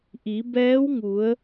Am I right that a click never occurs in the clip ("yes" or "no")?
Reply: yes